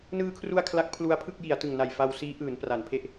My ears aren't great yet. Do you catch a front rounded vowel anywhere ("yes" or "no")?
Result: no